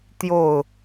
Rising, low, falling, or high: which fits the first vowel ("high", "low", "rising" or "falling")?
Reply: falling